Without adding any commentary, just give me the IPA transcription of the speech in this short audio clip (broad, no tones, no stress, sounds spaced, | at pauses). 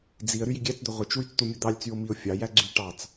d͡z i ə̯ ɾ y j i ɡʲ æ t͡s d̪ ø ʁʷ ɯ t͡ʃ w y t͡s t̪ u mʲ o d̪ ɑ lʲ t͡s y ʊ̯ m i ʊ̯ fʲ ɑ j æ ɡ͡ǀ y ʈ ɑ t͡s